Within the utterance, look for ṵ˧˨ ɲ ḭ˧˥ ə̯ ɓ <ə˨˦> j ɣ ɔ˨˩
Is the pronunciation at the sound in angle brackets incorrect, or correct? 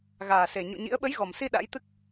correct